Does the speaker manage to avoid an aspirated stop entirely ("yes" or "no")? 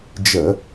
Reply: yes